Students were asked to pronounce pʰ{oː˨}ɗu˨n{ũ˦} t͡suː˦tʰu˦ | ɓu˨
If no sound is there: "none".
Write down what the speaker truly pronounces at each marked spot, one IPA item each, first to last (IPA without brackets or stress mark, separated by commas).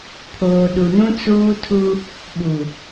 oː˨, ũ˦